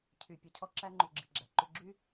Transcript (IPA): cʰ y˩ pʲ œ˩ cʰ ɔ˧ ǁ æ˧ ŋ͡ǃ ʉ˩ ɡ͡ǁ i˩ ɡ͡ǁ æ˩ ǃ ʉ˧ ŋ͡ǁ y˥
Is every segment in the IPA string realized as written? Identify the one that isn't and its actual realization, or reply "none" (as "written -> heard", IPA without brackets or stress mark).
ŋ͡ǁ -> ɡ͡ǁ